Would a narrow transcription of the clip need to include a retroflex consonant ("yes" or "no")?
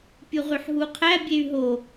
no